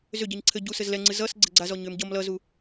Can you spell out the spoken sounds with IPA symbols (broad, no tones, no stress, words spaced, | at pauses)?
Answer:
zʏɟɛɲ ǀʰɘ ɟu sɘzlɛŋ͡ǀɨ zʌs ɡ͡ǀɘɡ͡ǀazɔ ɲʏm ɟʌm lʌzu